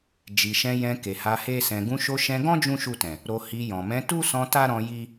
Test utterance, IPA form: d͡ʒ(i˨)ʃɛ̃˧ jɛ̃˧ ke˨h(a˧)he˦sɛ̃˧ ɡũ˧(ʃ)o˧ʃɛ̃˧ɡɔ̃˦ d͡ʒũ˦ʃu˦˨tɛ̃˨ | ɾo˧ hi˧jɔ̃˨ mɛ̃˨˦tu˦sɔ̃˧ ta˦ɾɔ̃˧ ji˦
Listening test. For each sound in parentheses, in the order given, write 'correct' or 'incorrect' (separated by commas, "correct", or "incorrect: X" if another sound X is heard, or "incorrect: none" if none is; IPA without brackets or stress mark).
correct, correct, correct